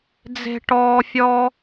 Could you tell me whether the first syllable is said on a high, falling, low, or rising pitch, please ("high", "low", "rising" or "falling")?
high